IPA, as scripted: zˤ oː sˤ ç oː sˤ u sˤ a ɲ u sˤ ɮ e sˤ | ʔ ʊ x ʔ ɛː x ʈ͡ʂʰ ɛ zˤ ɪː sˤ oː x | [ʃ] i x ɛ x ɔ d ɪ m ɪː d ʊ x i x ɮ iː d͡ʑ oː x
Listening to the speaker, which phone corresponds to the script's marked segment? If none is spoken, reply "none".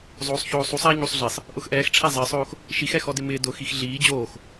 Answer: ʃ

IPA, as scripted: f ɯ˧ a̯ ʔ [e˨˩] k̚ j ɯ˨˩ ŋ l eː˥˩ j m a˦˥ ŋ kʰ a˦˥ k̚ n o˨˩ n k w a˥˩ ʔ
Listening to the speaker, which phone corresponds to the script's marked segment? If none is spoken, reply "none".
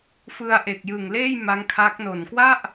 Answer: e˨˩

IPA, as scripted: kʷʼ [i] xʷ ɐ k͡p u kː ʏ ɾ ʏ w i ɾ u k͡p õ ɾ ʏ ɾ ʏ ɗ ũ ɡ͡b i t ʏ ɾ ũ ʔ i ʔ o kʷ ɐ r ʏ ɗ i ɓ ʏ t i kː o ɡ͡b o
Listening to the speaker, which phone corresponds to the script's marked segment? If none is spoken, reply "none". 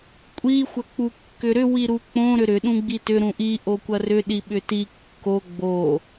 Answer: i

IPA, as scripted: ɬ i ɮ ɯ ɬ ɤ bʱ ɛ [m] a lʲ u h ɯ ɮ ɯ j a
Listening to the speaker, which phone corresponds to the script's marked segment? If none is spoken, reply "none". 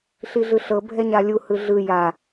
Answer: ɲ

